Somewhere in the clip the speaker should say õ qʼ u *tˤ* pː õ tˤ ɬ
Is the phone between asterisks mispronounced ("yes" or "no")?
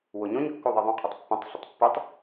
no